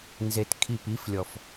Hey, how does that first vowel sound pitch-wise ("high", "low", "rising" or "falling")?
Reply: low